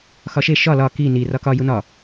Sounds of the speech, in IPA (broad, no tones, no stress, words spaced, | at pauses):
xɒʃe ʃɒ lɒ ki ni rɒkɒ junɒ